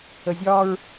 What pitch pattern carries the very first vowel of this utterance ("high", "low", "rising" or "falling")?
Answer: low